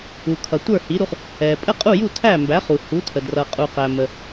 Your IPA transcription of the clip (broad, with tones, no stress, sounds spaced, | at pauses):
u˩ kʰ ʌ˩ tʷ ə˞˥˩ h i˩˥ ɾ u˧ χ | ɛ˩ pʼ ə˥˩ qʼ u˥˩ j u˥˩ tʰ æ˥˩ m b æ˩˥ χ u˩ h u˩˥ tʰ ə˩ d r ʌ˩ qʼ u˩ q æ˩ m ə˩